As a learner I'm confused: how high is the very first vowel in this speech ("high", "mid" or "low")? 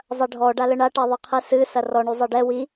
low